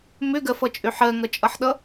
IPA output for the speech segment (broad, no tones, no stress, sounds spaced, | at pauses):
m ʏ ɡ ɜ f ʌ t͡ʃʼ ʏ ħ ɜ ŋ ʌ t͡ʃʼ ʌ ħ ɗ ʌ